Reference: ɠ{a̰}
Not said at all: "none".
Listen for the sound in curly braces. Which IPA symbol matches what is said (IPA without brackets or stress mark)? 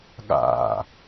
a̰